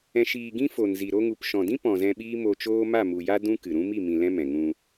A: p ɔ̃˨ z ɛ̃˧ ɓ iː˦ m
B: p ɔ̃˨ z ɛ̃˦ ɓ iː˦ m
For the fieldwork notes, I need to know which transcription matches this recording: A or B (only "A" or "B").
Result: A